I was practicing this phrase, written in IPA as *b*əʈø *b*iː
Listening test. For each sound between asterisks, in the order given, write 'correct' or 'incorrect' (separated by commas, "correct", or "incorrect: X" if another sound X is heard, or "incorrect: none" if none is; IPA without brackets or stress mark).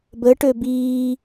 correct, correct